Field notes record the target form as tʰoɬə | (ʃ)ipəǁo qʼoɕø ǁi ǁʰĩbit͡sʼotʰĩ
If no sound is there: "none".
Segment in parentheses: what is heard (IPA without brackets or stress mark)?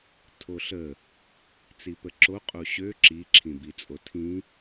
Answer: t͡s